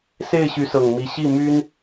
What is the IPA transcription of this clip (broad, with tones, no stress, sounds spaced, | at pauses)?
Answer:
s e˥˩ ɪ̯ ɕ y˧˥ s ɤ˨˩ ŋ m i˧˥ ɕ i˥˩ m y˥ n